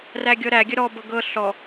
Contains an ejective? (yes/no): no